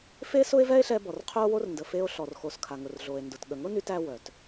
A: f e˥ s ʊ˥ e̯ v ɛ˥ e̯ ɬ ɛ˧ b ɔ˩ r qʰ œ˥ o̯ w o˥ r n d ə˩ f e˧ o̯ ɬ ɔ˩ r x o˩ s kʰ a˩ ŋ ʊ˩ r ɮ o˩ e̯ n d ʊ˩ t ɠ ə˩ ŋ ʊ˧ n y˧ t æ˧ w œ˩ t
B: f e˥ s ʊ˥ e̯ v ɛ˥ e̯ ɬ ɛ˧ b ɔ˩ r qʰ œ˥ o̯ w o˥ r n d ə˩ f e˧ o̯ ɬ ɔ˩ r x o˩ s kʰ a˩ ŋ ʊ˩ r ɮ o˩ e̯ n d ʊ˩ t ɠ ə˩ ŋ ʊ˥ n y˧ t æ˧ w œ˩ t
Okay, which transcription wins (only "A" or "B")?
B